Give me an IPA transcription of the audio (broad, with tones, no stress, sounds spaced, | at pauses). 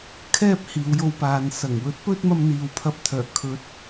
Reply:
kʰ ɛː˥ p̚ h iː˨˧ w j o˧ w p aː˨ n s ɐ˨˩ ŋ w ɵ˨˥ t̚ p ɵ˥ t̚ m ɐ˧ m n̪ iː˨ w pʰ ɐ˧ p̚ t̪ʰ œː˨˩ kʰ ɵ˨˥ t̚